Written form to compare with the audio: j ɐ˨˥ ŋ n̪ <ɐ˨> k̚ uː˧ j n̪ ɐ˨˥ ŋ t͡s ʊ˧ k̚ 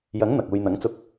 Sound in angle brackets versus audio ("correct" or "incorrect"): correct